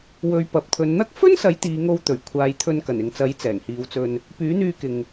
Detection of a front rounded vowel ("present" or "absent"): present